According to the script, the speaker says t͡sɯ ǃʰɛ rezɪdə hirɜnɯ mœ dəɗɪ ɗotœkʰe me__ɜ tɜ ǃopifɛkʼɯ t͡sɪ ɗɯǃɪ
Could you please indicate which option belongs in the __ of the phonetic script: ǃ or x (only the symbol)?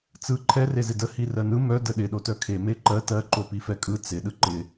ǃ